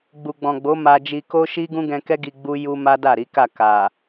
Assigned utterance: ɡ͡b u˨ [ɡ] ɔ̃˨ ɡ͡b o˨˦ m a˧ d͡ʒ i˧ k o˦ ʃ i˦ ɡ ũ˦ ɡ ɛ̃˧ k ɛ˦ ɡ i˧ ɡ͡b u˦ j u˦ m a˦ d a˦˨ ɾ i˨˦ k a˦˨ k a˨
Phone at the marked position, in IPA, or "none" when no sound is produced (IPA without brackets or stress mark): ɡ͡b